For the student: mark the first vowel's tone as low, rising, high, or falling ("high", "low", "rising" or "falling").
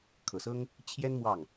low